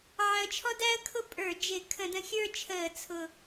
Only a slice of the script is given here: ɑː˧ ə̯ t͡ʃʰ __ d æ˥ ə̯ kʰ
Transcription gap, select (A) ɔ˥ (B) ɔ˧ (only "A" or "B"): A